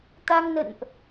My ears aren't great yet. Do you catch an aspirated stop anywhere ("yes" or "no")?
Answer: no